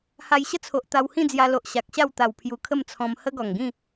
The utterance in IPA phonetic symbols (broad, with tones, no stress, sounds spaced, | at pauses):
h a˧ j ɕ ə˦ t͡sʰ o˨ ʔ t̪ a˧ w h ĩ˥˧ d͡z j a˧ l o˨ ʔ ɕ a˨ k̚ ɕ a˥˧ w t̪ a˨˩ w pʰ j u˨˩ kʰ ə˥˧ m t͡sʰ ɔ̃˧ m h ə˦ ɡ ɔ˨˩ ŋ ɡ ĩ˥˧